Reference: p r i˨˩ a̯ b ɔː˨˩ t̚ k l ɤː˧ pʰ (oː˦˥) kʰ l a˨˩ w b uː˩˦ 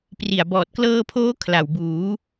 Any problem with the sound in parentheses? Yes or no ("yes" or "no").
no